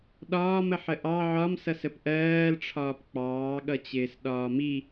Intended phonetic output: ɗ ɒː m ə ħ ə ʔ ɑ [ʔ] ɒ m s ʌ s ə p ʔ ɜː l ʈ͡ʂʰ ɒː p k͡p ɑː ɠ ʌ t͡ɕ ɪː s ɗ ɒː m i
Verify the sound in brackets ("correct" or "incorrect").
incorrect